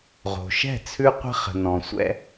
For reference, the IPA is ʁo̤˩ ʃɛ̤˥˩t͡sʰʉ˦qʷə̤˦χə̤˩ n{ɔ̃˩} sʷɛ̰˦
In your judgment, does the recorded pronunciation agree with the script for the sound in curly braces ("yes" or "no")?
yes